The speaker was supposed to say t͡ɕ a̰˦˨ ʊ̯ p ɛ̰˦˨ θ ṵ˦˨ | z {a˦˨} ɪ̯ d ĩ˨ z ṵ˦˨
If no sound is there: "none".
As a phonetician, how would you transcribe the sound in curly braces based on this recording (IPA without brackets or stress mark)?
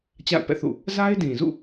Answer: a˦